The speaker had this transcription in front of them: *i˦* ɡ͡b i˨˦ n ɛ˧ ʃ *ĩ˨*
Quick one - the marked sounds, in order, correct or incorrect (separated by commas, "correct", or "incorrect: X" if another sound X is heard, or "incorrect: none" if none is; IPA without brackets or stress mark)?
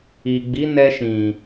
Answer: incorrect: i˨, correct